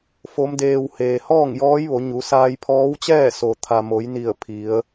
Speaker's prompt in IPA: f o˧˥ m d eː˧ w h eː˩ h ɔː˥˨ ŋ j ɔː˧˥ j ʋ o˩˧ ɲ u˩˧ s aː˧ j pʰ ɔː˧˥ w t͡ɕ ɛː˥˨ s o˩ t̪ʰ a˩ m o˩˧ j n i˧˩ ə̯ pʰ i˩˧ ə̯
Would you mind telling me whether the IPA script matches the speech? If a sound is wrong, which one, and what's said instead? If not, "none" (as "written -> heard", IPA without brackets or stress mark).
none